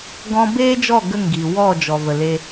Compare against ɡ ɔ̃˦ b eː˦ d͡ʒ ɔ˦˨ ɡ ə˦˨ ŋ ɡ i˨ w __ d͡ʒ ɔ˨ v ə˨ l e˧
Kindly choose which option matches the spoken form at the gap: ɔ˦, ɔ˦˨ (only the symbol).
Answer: ɔ˦˨